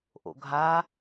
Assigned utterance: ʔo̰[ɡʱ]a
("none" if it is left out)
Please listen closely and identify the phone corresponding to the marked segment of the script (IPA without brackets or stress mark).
ɡʱ